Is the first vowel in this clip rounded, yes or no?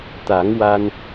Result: no